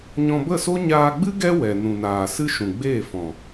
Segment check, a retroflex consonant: absent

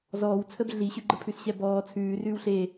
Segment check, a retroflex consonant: absent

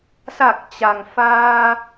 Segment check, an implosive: absent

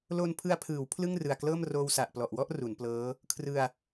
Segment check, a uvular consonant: absent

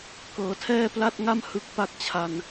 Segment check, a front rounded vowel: absent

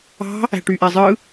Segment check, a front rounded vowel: present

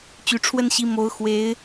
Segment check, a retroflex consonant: present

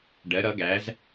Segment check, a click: absent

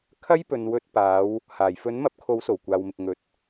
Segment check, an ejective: absent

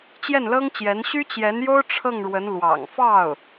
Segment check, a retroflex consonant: present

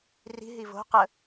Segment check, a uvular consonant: present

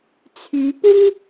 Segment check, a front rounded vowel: present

